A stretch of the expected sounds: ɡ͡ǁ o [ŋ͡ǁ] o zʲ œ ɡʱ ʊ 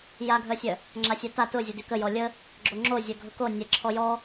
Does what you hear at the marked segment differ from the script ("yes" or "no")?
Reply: no